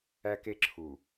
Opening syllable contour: high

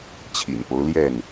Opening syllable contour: low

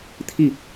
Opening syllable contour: falling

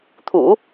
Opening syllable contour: low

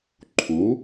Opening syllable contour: rising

